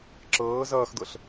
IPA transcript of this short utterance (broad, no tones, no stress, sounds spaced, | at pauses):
ǁ ɤː z ʌː x d̪ ɤ ɬ